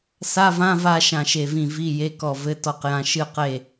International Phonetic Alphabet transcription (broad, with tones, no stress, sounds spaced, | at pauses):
s a˧˥˧ v ã˧˥˧ v a˦˨ ʃ ã˦˨ ʃ e˦˨ v ĩ˦˨ v i˧˥˧ j e˧˥˧ k ɔ˦˨ v ɘ˧˥˧ t ɔ˦˨ q j ã˦˨ ʃ ɨ˦˨ q e˦˨